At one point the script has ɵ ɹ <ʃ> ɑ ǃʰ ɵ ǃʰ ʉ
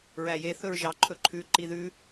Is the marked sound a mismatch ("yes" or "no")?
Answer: yes